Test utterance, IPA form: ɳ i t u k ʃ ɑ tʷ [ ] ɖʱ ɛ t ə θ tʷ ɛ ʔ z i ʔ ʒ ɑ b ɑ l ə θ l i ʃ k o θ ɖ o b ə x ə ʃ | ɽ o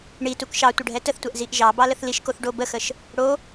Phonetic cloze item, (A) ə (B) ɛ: A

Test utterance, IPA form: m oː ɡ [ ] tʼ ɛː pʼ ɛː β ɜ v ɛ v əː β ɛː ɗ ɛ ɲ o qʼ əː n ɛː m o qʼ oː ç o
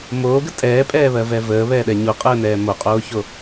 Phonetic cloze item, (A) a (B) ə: B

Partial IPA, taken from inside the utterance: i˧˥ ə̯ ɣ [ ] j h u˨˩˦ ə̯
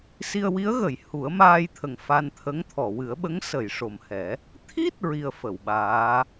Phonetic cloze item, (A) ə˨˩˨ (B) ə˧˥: A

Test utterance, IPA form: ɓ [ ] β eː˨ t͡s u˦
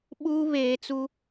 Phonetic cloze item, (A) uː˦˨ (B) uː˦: B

